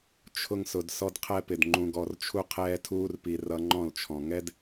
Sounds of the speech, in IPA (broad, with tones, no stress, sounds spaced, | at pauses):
t͡ʃʰ ʊ˧ ŋ s ʊ˨ d s ɔ˦ d qʰ ɛ˦ p ɪ˨ d ŋ͡ǃ ũ˨ ɡ ɔ˨ r t͡ʃʰ u˧ qʰ ɛː˧ tʰ uː˧ r p i˨ r ʌ˧ ŋ͡ǃ ɔ̃˦˨ l t͡ʃʰ ɔ̃˨ ŋ ɛ˦ d